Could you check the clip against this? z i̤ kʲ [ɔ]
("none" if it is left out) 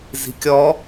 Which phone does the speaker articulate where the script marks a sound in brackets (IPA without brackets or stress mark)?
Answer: ɔ